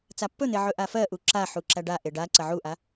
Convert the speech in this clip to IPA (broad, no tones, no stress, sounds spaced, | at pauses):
t͡s a pː ɵ n̪ e ʕ ɵ ʔ a f ɜ ʔ u ǁ a ħ u ǁ æ ɖ a ʔ e ɖ a ǀ ɐ ʕ u ʔ a